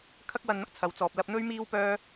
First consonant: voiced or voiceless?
voiceless